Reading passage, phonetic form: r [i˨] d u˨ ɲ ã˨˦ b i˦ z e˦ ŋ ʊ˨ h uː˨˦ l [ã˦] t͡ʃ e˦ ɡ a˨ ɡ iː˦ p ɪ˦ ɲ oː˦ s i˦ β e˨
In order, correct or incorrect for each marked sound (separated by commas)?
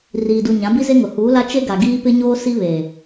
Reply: incorrect, incorrect